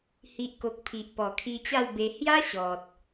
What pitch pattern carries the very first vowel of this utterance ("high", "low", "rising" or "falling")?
low